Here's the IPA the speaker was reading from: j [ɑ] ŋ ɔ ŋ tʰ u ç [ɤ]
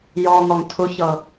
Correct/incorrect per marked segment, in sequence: incorrect, correct

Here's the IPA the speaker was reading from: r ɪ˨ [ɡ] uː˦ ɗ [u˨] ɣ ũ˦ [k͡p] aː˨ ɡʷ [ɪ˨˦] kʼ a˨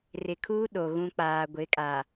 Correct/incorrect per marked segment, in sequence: incorrect, incorrect, correct, correct

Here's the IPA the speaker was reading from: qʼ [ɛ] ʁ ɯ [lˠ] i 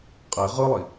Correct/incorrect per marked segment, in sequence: incorrect, correct

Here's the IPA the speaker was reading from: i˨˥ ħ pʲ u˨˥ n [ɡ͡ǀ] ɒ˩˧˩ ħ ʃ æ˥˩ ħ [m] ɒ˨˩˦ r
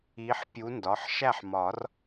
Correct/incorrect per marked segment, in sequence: incorrect, correct

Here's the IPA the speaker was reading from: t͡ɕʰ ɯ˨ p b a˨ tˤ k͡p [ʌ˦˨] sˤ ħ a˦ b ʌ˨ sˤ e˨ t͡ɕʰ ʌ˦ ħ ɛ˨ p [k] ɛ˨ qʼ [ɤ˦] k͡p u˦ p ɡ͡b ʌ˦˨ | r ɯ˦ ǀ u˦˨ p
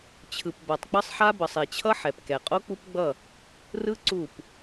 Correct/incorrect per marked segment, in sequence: incorrect, correct, incorrect

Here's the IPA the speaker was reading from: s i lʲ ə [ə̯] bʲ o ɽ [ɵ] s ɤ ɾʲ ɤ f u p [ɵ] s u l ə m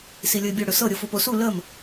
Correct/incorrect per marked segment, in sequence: incorrect, correct, incorrect

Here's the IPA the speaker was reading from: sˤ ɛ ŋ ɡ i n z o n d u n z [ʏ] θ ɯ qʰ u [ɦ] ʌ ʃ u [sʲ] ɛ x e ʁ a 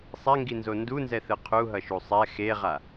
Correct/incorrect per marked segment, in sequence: incorrect, correct, incorrect

